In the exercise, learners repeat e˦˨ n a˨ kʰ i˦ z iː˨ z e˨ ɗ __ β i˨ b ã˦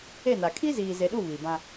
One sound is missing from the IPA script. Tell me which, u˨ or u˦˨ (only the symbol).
u˦˨